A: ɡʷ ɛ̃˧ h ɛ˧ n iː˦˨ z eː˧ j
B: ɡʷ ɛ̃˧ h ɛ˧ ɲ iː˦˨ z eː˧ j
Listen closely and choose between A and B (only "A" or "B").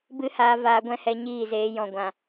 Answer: B